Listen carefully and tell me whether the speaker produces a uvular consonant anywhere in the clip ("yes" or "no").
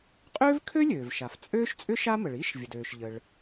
yes